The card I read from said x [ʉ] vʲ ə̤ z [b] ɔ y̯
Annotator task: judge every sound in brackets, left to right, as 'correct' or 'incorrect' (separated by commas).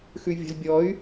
correct, incorrect